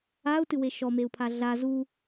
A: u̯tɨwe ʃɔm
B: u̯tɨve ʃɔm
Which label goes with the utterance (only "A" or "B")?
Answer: A